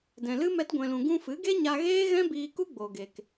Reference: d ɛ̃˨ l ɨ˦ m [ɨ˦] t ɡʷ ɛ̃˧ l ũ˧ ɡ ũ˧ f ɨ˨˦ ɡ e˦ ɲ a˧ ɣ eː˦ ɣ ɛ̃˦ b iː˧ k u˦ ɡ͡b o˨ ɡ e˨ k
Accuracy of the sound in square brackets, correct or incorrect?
incorrect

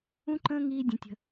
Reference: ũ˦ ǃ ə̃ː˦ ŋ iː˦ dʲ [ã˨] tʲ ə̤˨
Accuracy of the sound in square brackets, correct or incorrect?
incorrect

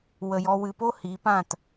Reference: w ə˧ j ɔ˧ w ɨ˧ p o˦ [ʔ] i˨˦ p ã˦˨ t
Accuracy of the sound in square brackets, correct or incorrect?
incorrect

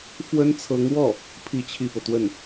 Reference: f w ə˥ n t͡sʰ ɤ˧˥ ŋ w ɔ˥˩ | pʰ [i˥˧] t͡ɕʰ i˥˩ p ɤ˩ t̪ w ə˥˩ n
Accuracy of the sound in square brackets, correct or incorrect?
correct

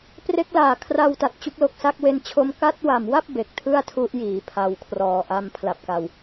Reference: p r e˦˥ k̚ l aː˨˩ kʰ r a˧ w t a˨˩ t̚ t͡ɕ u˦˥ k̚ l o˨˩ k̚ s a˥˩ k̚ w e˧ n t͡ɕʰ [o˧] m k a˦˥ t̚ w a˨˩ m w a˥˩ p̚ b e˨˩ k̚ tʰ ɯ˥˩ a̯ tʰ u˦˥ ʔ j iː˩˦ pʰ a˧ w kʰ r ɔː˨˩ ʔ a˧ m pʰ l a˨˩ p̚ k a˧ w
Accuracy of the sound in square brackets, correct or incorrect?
correct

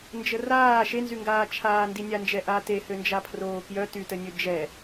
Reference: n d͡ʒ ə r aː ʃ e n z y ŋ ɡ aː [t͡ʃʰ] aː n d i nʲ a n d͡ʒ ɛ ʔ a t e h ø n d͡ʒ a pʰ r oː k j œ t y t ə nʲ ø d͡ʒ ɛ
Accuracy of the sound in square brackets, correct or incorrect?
correct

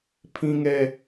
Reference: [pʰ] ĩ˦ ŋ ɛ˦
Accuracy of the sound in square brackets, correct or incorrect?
correct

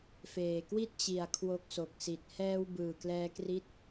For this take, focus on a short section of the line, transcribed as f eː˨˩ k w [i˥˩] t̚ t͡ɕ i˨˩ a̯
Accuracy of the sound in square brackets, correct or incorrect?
correct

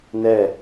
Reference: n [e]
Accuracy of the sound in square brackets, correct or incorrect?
incorrect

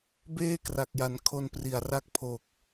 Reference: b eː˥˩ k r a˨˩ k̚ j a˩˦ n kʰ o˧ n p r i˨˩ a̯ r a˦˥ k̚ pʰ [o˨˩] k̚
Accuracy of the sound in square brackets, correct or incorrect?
correct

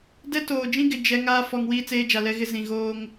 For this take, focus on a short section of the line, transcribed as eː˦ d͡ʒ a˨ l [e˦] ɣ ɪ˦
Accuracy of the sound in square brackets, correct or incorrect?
incorrect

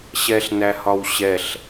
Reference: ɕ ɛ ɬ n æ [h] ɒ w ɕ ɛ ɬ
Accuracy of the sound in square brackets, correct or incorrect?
correct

